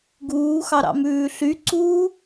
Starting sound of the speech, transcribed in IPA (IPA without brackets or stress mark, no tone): ɡ